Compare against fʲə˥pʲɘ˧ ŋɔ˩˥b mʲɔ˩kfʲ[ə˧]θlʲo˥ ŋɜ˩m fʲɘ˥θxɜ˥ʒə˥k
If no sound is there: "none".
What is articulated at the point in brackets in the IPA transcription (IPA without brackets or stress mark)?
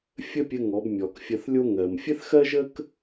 ə˧